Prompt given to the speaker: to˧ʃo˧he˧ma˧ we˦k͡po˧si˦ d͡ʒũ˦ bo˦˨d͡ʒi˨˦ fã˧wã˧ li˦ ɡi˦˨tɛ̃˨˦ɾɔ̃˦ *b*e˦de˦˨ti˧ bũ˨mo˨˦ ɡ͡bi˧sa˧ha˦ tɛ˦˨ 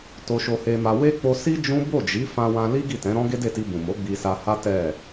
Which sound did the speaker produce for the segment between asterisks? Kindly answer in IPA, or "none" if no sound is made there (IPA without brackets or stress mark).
ɡ